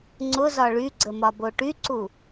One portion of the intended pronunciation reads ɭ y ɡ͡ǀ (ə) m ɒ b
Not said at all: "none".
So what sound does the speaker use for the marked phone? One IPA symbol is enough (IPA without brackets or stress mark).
ə